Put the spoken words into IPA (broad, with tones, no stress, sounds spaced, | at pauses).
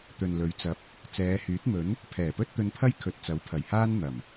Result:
t̪ ɵ˨ n l ɵ˨˧ ɥ t͡s ɐ˨˥ p̚ | t͡s ɛː˨˧ h yː˨˥ t̚ m ɵ˨˥ n | pʰ ɛː˨˩ p ɵ˥ t̚ t̪ ɵ˧ n pʰ ɐ˥ j kʰ ɵ˨ t̚ t͡s ɐ˨˥ w pʰ ɐ˨˩ j h aː˥ n n̪ ɐ˨˩ m